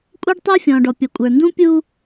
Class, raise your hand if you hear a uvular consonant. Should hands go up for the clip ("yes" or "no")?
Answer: no